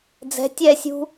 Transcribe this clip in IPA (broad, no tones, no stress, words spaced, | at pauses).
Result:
d͡zɛ̤ tʲɛsʲṳ